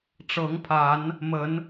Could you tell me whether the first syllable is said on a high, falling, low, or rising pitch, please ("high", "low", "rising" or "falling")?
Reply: rising